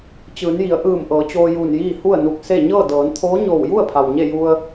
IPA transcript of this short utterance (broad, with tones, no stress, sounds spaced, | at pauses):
t͡ɕ ɯː˩˧ n j i˩˧ ə̯ ʔ ɯː˧˩ m ʔ ɤː˩˧ t͡ɕ oː˧ j uː˧˩ n j iː˥˨ h u˥˨ ə̯ n u˧˩ k̚ s e˥˨ ɲ ɤː˥˨ d ɤː˩˧ n t̪ʰ oː˧˥ ɲ oː˧˩ w j u˥˨ ə̯ pʰ a˩ w ɲ e˥˨ j u˧ ə̯